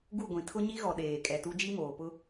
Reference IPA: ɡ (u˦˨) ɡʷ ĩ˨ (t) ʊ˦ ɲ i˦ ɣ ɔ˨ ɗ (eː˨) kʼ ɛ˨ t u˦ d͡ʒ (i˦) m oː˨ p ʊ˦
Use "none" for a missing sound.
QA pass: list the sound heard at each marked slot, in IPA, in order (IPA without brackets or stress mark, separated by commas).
u˦˨, tʰ, eː˨, i˦